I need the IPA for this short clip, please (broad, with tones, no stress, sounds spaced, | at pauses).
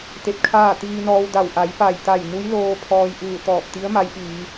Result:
t̪ e˧ p̚ kʰ aː˥˨ t̪ iː˧ n ɔː˧ w d a˧˩ w ʔ a˩˧ j p a˧˩ j t̪ a˧˩ j n u˧˥ j l oː˧ pʰ ɔː˧ j ʔ ɯː˧˩ t̪ ɔː˧˩ p̚ t̪ i˧˥ ə̯ m a˧˥ j ʔ iː˩˧